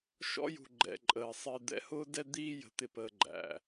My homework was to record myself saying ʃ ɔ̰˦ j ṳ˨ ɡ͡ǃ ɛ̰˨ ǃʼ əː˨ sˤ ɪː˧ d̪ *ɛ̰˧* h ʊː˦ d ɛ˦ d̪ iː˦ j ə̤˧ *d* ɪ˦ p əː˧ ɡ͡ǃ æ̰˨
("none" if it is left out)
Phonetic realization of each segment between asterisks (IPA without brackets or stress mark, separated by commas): ɛ̰˧, t̪